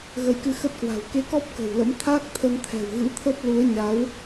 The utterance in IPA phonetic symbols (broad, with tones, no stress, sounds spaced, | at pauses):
ɣ ə˨˦ j k ɨ˧ x ə˦˥ t̚ k w a̤˨˩ w k e˧ k ɔ˦˥ p̚ k ə̤˨˩ w l ə̰˧˥ m t̪ʰ aː˦˥ k̚ t̪ʰ ə˧ n t̪ʰ ɛ̤˨˩ w ɣ ɨ̰˧˥ t̪ʰ ə˦˥ p̚ l u˨˦ ə̯ ɲ a˨˦ w